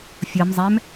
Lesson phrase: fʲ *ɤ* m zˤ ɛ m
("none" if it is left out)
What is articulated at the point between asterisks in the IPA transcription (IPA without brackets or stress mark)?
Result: ɤ